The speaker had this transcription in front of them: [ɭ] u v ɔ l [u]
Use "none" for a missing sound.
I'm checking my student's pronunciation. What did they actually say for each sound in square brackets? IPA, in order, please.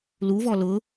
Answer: l, ʊ

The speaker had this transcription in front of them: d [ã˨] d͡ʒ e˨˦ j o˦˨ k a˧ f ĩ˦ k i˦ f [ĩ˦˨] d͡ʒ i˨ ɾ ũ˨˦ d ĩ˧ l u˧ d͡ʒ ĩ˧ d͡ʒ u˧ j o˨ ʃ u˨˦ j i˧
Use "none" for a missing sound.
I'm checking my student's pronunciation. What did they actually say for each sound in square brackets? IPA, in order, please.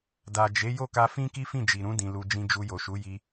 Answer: a˨, ĩ˦˨

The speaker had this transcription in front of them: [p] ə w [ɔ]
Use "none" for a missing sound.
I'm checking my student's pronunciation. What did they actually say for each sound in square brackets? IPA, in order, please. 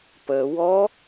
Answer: p, ɔ

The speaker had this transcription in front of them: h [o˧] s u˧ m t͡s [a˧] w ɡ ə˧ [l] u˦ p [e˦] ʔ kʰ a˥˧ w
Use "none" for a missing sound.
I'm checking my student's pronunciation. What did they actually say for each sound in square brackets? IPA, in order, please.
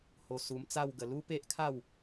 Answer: o˧, a˥˧, l, e˦

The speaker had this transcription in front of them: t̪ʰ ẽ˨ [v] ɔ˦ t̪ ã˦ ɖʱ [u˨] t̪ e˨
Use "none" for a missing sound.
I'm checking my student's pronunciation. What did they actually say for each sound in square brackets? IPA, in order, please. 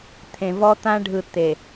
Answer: v, ɯ˨

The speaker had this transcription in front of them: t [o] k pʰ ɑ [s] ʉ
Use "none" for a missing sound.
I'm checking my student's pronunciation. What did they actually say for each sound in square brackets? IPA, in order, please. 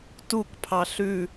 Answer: u, ɬ

